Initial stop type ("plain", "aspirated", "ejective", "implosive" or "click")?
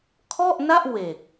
aspirated